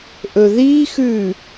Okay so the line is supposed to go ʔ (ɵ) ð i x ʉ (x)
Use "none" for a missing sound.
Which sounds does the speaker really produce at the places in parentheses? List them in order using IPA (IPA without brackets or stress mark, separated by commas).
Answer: ɵ, none